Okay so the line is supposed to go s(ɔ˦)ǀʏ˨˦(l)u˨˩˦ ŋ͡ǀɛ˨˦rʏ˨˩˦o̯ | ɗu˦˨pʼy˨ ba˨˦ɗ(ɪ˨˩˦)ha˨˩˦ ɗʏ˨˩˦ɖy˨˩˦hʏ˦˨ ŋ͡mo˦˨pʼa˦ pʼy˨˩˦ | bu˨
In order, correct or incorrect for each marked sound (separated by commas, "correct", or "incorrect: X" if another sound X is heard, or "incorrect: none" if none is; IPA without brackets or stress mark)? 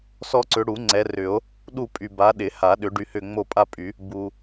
correct, incorrect: ɽ, correct